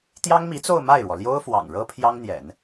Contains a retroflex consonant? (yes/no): yes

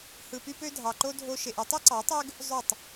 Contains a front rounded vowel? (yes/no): yes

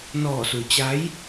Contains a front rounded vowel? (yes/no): no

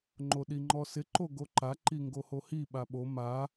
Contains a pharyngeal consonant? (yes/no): no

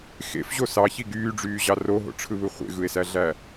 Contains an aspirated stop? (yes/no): yes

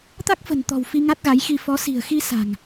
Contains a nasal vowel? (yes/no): no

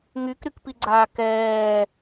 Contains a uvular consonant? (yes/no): no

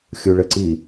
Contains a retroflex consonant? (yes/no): yes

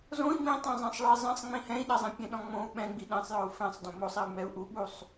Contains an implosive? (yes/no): yes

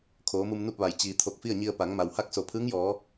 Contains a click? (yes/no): no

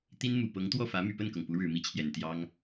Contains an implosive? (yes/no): no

